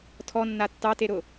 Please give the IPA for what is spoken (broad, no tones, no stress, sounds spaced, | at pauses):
tʰ ɔ nː a tː ɑ t e ɾ ʊ